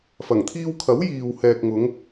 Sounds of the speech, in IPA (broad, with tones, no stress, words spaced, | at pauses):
fɐ˨˩ŋt̪ʰiː˧wkʰɐ˨˥w jiː˨whɛː˨k̚ŋʊ˨˧ŋ